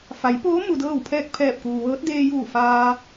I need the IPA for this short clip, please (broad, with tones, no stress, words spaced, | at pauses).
fa˩˧jpoː˧˥ mu˧dɤː˥˨wpʰɛː˥˨k̚ pʰɛː˧˩p̚kuː˩ʋɤː˧˥t̚ deː˧juː˧˩ faː˧